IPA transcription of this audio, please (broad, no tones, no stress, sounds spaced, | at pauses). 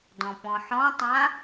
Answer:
d ɔ̃ p ɔ̃ ħ ɔ̃ tˤ ã